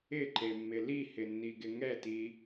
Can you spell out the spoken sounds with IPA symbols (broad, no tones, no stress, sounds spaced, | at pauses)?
ɪ ǃ e mː ɪ l i h ɪ nː i ɡ ɪ ŋ ɛ t i